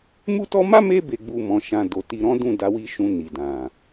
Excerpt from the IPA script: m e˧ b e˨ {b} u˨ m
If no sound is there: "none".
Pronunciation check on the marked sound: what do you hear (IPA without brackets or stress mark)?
ɡ͡b